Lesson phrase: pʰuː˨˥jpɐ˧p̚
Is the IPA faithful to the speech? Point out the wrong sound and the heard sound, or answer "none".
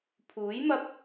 p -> m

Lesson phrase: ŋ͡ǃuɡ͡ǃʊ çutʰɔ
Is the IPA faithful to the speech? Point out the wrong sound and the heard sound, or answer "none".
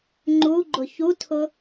ɔ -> ʊ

